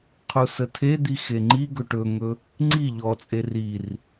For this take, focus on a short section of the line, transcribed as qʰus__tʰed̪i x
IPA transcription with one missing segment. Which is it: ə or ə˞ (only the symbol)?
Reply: ə